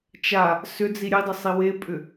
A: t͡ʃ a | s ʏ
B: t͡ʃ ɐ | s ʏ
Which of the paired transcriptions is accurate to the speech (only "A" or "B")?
A